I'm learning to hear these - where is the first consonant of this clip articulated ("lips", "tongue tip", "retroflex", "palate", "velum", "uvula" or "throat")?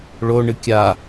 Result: retroflex